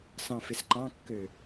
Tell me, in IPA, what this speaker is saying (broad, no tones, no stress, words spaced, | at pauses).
sɑ̃fɪsǃɑ̃kːø